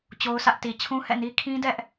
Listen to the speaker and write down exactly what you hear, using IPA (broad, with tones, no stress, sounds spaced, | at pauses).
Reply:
t͡ɕ o˦ ʊ̯ sʰ ä˦ ʔ t i˨ t͡ɕʰ ũ˦ h ɛ̰˦˨ n i˦ kʰ ĩ˦ d ɛ˦ ʔ